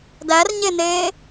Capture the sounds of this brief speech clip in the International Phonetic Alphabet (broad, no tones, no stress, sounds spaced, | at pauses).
d æ r ɲ e n eː